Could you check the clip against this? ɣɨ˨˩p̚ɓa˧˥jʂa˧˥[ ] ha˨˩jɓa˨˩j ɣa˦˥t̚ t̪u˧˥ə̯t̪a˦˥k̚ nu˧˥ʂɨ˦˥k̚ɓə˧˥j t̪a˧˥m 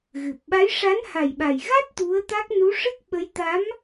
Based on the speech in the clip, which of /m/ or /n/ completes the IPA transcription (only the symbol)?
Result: n